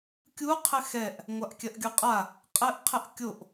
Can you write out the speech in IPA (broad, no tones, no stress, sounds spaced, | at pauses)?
kʲ u qʰ ɘ x ɛ ʔ | ŋʷ a ʔ kʲ ɐ ʔ ɡʲ u qʼ a | qʼ ɘ ʔ qʰ ɘ ʔ kʲ o ʔ